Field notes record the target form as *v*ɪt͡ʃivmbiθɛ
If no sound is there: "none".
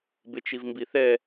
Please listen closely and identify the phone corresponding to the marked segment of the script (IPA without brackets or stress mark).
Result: b